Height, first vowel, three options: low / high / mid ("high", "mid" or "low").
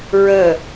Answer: mid